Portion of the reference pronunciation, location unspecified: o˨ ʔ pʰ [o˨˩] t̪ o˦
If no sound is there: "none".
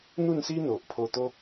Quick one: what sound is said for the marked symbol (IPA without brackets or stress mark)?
o˧